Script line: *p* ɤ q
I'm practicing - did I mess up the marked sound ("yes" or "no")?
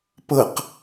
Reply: no